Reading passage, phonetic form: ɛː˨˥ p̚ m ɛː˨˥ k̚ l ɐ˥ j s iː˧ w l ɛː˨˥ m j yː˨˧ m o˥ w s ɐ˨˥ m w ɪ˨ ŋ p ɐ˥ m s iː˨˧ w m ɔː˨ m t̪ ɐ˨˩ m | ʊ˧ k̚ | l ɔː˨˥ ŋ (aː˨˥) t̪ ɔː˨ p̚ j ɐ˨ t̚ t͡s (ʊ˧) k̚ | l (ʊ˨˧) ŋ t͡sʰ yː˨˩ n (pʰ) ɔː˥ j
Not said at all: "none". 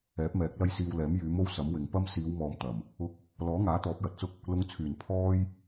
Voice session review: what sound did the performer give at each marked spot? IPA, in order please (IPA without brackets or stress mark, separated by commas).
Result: aː˨˥, ʊ˥, ʊ˨˧, pʰ